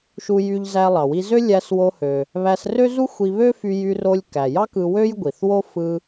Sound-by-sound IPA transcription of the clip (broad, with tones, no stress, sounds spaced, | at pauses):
ʃ u˧ j y˧ ʎ z æ˧ lˠ ɑ˩ w i˧ z ø˥ lʲ æ˧ s w o˧ h ø˩ | β æ˧ s r ø˥ z u˥ xʷ i˧ β ø˥ f y˧ j y˧ r o˧ lʲ k æ˩ j ɑ˥ k ɯ˧ w ø˥ j ɡʷ i˩ θ w o˥ f ɯ˧